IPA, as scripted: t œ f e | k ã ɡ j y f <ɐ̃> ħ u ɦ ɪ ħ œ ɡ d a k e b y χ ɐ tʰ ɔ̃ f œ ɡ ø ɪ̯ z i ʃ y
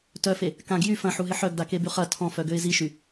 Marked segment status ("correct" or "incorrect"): correct